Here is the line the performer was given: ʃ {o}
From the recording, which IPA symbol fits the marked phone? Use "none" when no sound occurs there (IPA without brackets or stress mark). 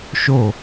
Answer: o